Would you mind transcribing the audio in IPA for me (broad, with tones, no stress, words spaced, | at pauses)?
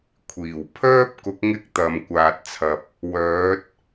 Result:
kʷʰiː˨˩w pʰœː˥p̚ kʊ˨˥k̚ ŋɪ˥k̚ t̪ɐ˨mkʷaː˨t̚t͡sʰɐ˨p̚ | wœː˨˥t̚